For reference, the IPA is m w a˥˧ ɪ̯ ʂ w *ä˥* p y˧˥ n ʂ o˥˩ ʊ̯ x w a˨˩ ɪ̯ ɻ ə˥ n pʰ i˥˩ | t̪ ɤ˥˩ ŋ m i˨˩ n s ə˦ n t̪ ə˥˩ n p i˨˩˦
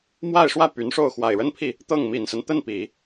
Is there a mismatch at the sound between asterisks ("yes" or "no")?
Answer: yes